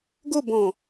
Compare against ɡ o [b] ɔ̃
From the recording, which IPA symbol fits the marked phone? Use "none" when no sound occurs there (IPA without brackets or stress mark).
b